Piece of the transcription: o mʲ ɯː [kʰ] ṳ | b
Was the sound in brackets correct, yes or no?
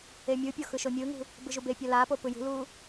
no